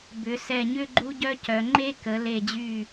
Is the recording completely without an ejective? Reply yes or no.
yes